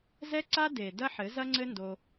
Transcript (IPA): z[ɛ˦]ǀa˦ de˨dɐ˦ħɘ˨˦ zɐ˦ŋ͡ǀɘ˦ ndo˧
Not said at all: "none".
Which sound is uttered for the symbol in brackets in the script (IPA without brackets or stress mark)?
ɛ˦